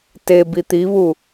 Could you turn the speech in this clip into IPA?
t e b i t̪ i β u

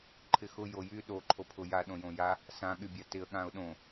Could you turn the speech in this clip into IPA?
ǃʰ ɪ x ʊ j o j y ɗ o ǃʰ o pʰ ʊ j a ɗ õ j õ j a | s ã ɠ y bʲ a t ɪ ə̯ ɠ ã ʊ̯ ɗ õ

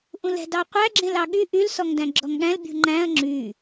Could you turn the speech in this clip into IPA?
ʔ ũ l ɛ̤ d ɑ qʷ æ ɡ͡ǁ ẽ l ɑ ɠ y ʔ y l s ɔ ŋ d æ̃ ɡ͡ǁ ɔ ŋ ɠ æ̃ l bʲ ṳ ŋ͡ǃ æ̃ ɐ̯ ŋ͡ǁ y

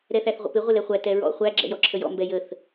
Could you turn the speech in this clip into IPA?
ɾ ɛ θ æ θ ʁʷ ə̰ p ɪ ʁʷ ɪ l ɛ χʷ æ t ɛ ɹ ɔ̰ χʷ æ ɡ͡ǁ ɛ̰ j ɔ ǁʰ ə j ɔ̰ m b ɛ j ə θ

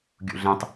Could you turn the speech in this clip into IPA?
ɡʲ ṵ ɮ ẽ tˤ

